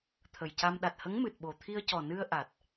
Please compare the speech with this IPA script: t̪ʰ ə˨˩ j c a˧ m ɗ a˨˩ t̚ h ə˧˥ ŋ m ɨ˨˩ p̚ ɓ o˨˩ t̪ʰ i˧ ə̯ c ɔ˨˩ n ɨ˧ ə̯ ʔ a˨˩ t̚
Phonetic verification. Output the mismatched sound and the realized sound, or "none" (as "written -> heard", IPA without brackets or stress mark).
p̚ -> t̚